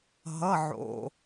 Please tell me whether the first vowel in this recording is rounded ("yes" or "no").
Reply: no